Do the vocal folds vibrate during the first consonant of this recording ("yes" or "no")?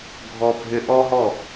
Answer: yes